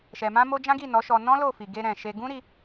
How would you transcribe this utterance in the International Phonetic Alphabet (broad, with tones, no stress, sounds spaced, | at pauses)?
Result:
ʃ ɛ˨ m ã˧ m o˧ d͡ʒ ã˦ ɡ i˦˨ n ɔ˨˦ ʃ ɔ˧ n ɔ̃˦ l o˦˨ f i˨ ɡ e˧ ɾ ɛ̃˨ ʃ e˧ ɡ ũ˦ ɾ i˧